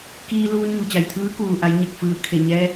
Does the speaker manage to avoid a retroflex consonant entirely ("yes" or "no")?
yes